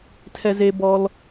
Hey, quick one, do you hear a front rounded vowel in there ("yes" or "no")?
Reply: no